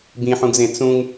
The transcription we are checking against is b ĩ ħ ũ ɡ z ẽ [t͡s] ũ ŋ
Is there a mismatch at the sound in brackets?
no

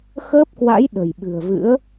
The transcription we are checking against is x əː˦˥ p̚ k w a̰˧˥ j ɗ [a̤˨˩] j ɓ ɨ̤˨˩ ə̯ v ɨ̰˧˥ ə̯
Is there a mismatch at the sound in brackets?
yes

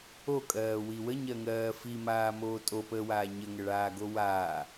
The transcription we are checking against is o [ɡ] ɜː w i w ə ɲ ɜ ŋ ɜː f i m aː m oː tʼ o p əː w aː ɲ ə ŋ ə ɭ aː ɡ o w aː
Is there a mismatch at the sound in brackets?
yes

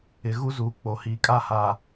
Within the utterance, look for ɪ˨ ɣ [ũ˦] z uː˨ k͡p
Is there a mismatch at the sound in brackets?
yes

